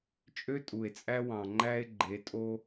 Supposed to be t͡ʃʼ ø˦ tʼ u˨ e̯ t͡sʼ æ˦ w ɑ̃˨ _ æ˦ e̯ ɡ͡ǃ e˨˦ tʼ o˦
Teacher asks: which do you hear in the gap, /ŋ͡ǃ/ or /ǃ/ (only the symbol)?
ŋ͡ǃ